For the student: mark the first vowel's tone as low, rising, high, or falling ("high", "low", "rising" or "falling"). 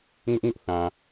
high